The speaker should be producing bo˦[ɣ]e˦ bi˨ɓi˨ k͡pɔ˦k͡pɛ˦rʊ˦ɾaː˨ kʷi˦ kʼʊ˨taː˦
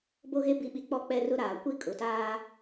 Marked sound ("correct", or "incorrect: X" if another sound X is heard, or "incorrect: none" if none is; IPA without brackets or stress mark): correct